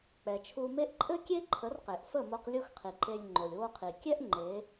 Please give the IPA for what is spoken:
k͡pɛ˩t͡ʃʰu˧me˥ʔ ǃʼɘ˥kʲe˥ǃʰə˩˥r qe˩ʔfə˥˩mo˧q lʲo˥xqʰi˩ǃe˧lʲ ŋ͡ǃo˩lʲwo˧qʰi˩kʲɛ˥ʔ ŋ͡ǃe˩˥

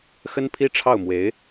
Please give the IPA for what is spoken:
xə˥npʰi˥ʈ͡ʂʰɑ˥˩ʊ̯mwe˧˥ɪ̯

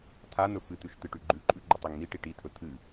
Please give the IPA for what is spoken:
tʰan̪ɵ fɨt̪ʉʃ t̪ɨʈʉɡ͡ǃʉǃʼʉ ɡ͡ǃɵtˤiŋn̪iʈi ʈitʰɵ t̪ʰɨ

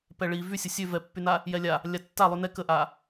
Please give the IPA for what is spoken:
pɛɭi vysʲə sʲø vɛpːyna | jɛlʲa | lʲatːalˠy nɛ kəʔa

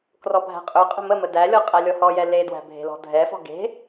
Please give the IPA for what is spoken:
krɔbʱæ̤qʼɵqʼə̤ mə mədælʲɔ qʼælʲɔhɔjɛ ledwæ̤ bʱe̤lɔ̤dʱɛfɔ̤ ɡe̤

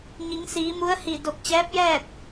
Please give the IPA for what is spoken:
ɲi˩˧ŋsiː˩˧mu˧˥ə̯hi˧˩ do˧˩k̚t͡ɕɛː˧˥p̚jɛː˥˨t̚

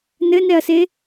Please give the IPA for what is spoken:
nɘnɛɐ̯se

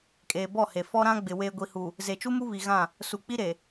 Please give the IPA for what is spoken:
kʼeː˨bɔ˦˨he˨ fɔ˦ɾã˦ ɡ͡bɪ˨ weː˨ɡʷi˨hu˨ | ze˨t͡ʃu˦mu˦ βi˨ɣã˦˨ | su˨k͡pi˦ɾe˨

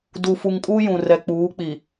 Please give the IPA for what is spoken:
du˨fu˨ŋkʼuː˦ jũ˨rɛ˨k͡puː˨˦ k͡pi˨

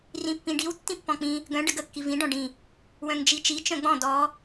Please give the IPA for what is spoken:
rĩpːĩɖiw tːĩpːɔ̃k͡pĩ | ɡœ̃ ɖəɡə kːivĩ ɖɔ̃ɖĩ | wœ̃ŋd͡ʒit͡ʃi t͡ʃœ̃ɡ͡bɔ̃ dɔ

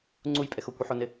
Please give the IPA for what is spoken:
ŋ͡ǀujpʼɛx okʷɪħonɪ

